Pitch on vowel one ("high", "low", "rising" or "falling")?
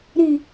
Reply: low